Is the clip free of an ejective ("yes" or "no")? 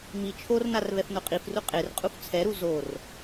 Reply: no